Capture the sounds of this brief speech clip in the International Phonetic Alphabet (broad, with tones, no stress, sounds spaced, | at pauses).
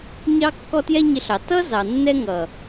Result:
ɲ ɑ˦ kː ɔ˦ t j ɛ˦ ɲ ɪ˧ ɬ ɑ˨ t ʌ˦ z ɑ˨ nː ɛ˦ ŋ ʌ˨